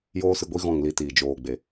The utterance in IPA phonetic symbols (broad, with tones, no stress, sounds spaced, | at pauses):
j oː˦ s ɨ˧ ɡʷ i˦ ɣ ɔ̃˦˨ ŋ l i˧ t iː˨ d͡ʒ oː˨ ɡ͡b e˨